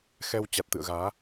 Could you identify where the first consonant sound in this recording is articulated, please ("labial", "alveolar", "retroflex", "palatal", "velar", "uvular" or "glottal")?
velar